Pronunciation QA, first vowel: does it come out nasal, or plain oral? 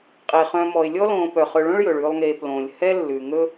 oral